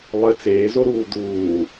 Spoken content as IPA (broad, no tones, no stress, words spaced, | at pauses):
lˠɘ t͡seːzoɾuː d̪uː